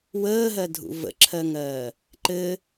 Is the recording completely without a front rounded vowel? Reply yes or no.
yes